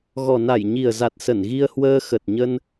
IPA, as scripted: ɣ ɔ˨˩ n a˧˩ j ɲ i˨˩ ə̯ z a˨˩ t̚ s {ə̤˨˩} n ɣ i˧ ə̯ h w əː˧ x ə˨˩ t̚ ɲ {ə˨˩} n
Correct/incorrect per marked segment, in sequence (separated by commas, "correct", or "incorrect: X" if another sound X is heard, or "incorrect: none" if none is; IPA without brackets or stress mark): incorrect: ə˧˩, incorrect: ə˧